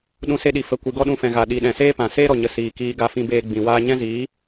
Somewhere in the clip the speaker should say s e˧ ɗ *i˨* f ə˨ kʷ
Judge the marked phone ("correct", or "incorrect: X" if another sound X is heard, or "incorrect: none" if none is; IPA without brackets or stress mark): correct